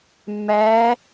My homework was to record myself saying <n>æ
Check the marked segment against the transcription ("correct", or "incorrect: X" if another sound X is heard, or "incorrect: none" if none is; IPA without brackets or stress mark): incorrect: mː